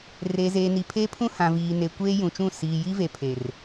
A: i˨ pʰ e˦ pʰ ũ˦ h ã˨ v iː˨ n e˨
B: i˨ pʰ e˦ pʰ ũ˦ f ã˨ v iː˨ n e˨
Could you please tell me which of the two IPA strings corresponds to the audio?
A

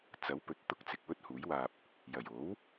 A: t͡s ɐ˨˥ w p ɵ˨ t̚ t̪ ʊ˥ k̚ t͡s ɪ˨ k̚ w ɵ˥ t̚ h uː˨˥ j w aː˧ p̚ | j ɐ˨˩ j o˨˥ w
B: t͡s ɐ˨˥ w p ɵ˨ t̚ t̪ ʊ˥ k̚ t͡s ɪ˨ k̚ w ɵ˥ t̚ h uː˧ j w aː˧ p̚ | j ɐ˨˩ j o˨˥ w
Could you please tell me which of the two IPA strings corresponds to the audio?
A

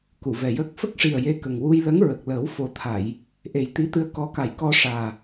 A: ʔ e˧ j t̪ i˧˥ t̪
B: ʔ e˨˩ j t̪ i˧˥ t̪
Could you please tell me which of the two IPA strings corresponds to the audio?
B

